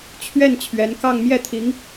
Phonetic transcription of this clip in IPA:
t͡ɕʰɥɛ˥˩n t͡ɕʰɥɛ˧˥n kɑ˥˧ŋ mjɛ˥˩t̪ʰi˧˥ŋ

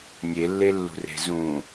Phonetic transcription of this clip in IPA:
nʲelːelːṳre̤ zũ

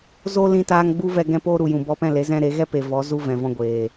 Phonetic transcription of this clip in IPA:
zo˦lĩ˧taː˧ŋ ɡ͡bu˦vɛ˧ ɡɛ̃˧poː˧ ɾu˨ jũ˨bɔ˧pɛ̃˦˨le˨˦ zɛ̃˧ ɾe˨˦ɣɛ˦pe˨vɔ˨˦ zu˧vɛ̃˨vɔ̃˧ ɡʷeː˨

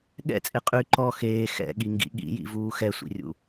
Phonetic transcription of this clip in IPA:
ɠɛ̰t͡sʼe qʼy ǃɔ xeː xɛ̰ɠiŋɡḭ ɠḭjḭvuː xɛsʷḭrʲṵ

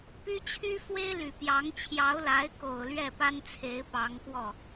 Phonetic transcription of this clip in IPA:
py˥t͡ɕʰy˥ fwe˥ɪ̯ly˨˩ pjɑ˧˥ŋ t͡ɕʰjɑ˧˥ʊ̯la˧˥ɪ̯ko˨˩ʊ̯ lɥɛ˥˩pa˥nt͡sʰe˧˥ɪ̯ pɑ˧˥ŋkwɔ˥˩

